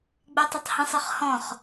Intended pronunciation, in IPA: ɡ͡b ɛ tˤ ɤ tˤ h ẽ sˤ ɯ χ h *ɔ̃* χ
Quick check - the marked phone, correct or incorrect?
correct